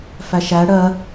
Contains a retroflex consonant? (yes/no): yes